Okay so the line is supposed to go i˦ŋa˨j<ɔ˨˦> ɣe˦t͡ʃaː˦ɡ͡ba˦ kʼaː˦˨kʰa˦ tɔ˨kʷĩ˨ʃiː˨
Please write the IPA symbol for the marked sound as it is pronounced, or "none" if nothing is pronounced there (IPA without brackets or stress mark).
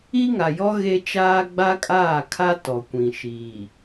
ɔ˦